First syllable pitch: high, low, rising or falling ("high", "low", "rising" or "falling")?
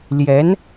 rising